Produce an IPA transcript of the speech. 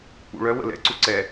k͡p ṵ ɭ œ w ə̰ l ɛ̰ ǀ u ǀ ɛ

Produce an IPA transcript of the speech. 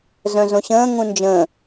z œ̃ z õ ɕ ə̃ː ŋ ũ n d͡ʒ ə̃

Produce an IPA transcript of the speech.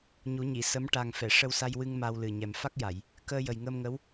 ɲ u˨˩˦ ɲ i˨˩˨ s ə˧˥ m ʈ a˨˩ ŋ f ɛ˨˩˨ ʂ ə˧ w s a˧ j w ɨ˧ ŋ m a˧ w l ɨ˨˩ ɲ ɛ˨˩ m f a˦˥ k̚ j a˨˩˨ j | k əː˧ j ə˨˩ j ŋ əː˧ m ŋ ə˧˥ w

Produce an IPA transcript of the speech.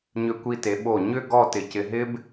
ɲ ʏ˧ kʷ i˧ t e˩˧ ɓ o˧˩ ɲ ʏ˥˧ ɡ ɔ˥˧ t ɪ˧˩ c ɪ˧ ɦ ɪ˥ b

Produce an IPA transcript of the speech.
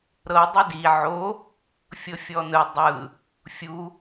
ɾ ɤ dˤ ɯ d i ʕ o | fʲ ɤ fʲ ɔ n ɯ dˤ ɯ | fʲ u

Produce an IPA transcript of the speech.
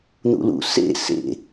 n̪ ṵ l ṵ s ḛ s ḛ

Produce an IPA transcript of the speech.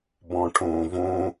b ɔ̃ ʈʰ õː v õ

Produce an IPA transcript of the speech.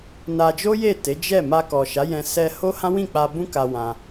n a˧ d͡ʒ o˦ j e˦˨ t e˨˦ d͡ʒ ɛ˦˨ m a˧ k ɔ˨ ʃ a˨˦ j ɛ̃˧ s ɛ˧ h o˦ h ã˦ w ĩ˦˨ k͡p a˧ b ũ˦ k a˧ w ã˧

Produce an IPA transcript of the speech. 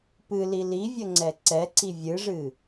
p ɨ l i l i vʲ ə ŋ͡ǀ ɛ ǀ ɛ ǀ i vʲ ɨ ʐ ɨ

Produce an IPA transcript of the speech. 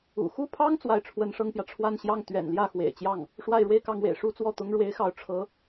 ṵ˨˩ x u˥˩ pʰ ɑ˥ ŋ t͡s w a˥˩ ɪ̯ ʈ͡ʂʰ w ə˥ n ʂ ɤ˥ ŋ p j ä˨ ʈ͡ʂʰ w a˥˧ n ɕ j ɑ˥˩ ŋ t̪ ɥ ɛ̰˨˩ n l j ä˥˩ x w ḛ˨˩ ɪ̯ t͡ɕ j ɑ˥˩ ŋ | ʂ w a˥˧ ɪ̯ ɻ w e˥˧ ɪ̯ k ɑ˥˩ ŋ w ḛ˨˩ ɪ̯ ʂ u˥ t͡s w ɔ˥˩ t̪ ʊ˥ ŋ ɻ w e˧˥ ɪ̯ x ɑ˧˥ ʊ̯ ʈ͡ʂʰ ɤ˧˥

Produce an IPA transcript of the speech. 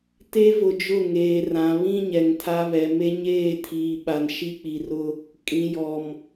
t e˦ v ʊ˨ d͡ʒ ʊ˦˨ ŋ eː˨ r ã˨ β ĩ˦ ɲ ɛ˨ ŋ tʰ a˦ β ɛ˨ m e˦ ɲ eː˦˨ tʰ iː˨ ɓ a˨ n ʃ i˦ k͡p i˨ r ʊ˦ | kʼ ĩ˨ j ɔ˨ m

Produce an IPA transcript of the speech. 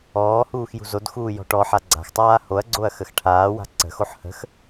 ɔː h uː x j ṳ z o d x uː j ɔ̤ ʈ ɔ ħ a ɡ͡ǀ a̤ x tˤ aː h o ɐ̯ ɡ͡ǀ o ɐ̯ x ə x ʈʰ aː w a̤ ǀ ə̤ x o ħ h ə̤ x

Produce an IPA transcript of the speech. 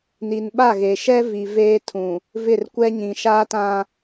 n i˨ n ɓ a˦˨ ɣ e˨ ʃ ɛ˦ v i˨ v eː˦ tʰ ũ˨ | v ɪ˦˨ r kʷ ɛ˦ ɲ ĩ˨ ʃ a˦ t ã˦

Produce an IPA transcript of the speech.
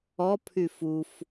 ɔ pʰ y f u f

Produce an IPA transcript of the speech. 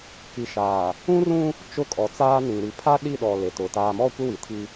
k i˨ ʃ aː˨ | ũ˦ r ũ˦ | t͡ʃ ʊ˦˨ kʼ ɔ˨ t͡s aː˦ n ĩ˨ ɾ i˨ pʰ a˦ ɗ i˦˨ ɗ ɔ˨ l e˨ t ʊ˨ t aː˨ m ɔ˦˨ kʷ ɪ˦ w i˨ tʰ i˦

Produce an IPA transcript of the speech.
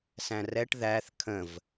s æ̃ r ɛ ʈ ð æ θ kʰ ə̃ v

